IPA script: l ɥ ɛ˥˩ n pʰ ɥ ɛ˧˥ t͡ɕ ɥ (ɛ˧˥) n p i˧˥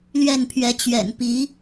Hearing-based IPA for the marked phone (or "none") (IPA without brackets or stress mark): ɛ̰˨˩